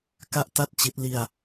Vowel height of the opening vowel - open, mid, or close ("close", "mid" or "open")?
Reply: open